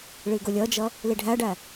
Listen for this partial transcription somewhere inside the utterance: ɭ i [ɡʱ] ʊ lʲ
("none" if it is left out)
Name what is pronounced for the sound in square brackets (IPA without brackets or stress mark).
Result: ɡ